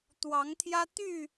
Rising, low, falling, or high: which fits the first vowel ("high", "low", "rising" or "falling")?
rising